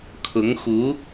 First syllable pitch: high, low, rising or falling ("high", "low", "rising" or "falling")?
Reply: rising